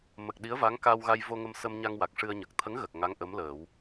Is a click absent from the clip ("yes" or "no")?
yes